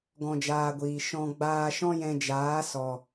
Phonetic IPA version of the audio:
ɡ ɔ̃˧ d͡ʒ aː˧ ɡʷ iː˨ ʃ ɔ̃˧ ɡ͡b aː˧ ʃ ɔ̃˦ j ɛ̃˧ d͡ʒ aː˨˦ s ɔ˨

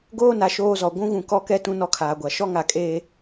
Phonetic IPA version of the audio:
ɡ oː˦ n a˨ ʃ oː˦ z ɔ˨ ɡʷ ũ˦ ɣ ũ˨ k ɔ˦ k ɛ˦ t ũ˦ n ɔ˦ kʰ aː˨ ɡʷ a˨ ʃ ɔ˦ ŋ a˨ kʼ eː˦

